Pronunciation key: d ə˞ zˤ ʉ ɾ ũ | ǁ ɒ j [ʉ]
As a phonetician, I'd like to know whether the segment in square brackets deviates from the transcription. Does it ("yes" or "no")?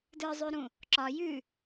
no